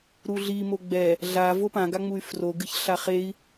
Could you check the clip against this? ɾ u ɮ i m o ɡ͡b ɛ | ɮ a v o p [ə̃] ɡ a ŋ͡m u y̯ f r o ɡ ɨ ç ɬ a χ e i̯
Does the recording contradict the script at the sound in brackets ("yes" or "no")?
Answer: yes